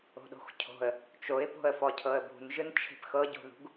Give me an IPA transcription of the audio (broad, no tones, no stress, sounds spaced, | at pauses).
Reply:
o̤ ɗ o̤ x cʰ o̤ ə̯ | t͡ʃ o ɪ̯ p o̤ ə̯ f ɔ cʰ ɤ ə̯ b ṳ n ʒ ɯ n t͡ʃʰ e̤ p x ɤ ɟ o̤ ð ṳ ɡ